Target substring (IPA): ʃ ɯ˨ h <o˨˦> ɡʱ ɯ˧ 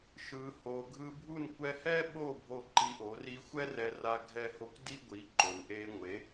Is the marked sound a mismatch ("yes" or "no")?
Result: yes